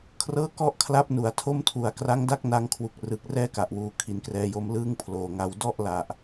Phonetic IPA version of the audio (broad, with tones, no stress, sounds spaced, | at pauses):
kʰ r ɤː˥˩ k ɔ˥˩ ʔ kʰ l a˦˥ p̚ n u˩˦ a̯ tʰ o˥˩ m tʰ u˩˦ a̯ k r a˦˥ ŋ d a˥˩ k̚ n a˧ ŋ kʰ w u˨˩ k̚ r ɯː˨˩ k̚ r ɛː˥˩ k a˨˩ ʔ w uː˨˩ kʰ i˩˦ n k r ɛː˧ j o˦˥ m l ɯː˥˩ ŋ pʰ l oː˨˩ ŋ a˧ w d ɔ˥˩ ʔ l a˨˩ ʔ